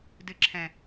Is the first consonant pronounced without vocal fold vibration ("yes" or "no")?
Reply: no